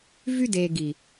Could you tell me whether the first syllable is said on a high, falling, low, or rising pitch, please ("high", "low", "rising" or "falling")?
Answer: high